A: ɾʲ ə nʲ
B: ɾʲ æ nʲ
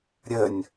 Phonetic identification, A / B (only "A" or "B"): A